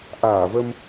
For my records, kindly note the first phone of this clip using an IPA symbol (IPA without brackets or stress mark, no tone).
ʔ